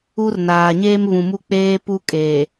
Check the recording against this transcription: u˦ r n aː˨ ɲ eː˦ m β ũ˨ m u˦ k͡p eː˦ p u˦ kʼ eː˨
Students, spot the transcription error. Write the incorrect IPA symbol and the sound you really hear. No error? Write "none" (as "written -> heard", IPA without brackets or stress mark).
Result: none